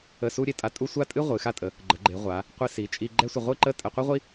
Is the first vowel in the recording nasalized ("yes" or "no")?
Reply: no